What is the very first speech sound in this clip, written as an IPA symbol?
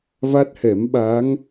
v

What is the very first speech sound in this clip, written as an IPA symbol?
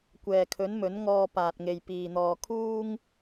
kʷ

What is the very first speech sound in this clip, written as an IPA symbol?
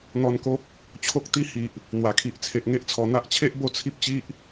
n̪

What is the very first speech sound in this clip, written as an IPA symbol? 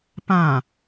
p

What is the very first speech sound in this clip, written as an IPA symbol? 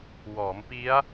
w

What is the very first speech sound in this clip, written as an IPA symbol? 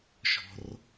ʃ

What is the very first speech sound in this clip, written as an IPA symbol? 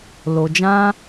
l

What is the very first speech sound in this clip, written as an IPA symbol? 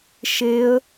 ʃ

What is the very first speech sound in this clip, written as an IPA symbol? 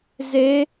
z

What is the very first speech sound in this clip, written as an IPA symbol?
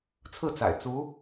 t͡sʰ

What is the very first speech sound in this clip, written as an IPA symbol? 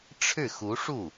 ʈ͡ʂʰ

